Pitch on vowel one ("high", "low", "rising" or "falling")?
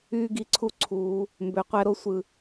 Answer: high